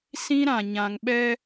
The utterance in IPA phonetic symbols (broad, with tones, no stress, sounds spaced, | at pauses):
s ĩ˦ ɾ ã˨ ɲ ã˨ ŋ ɓ ɛ˦